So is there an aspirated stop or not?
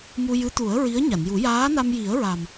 no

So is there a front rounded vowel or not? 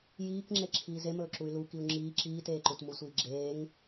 yes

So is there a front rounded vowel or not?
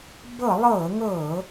no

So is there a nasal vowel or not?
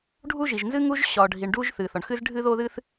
no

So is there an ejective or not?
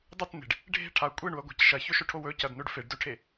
yes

